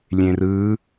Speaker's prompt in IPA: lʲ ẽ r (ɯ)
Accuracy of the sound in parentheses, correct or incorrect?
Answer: correct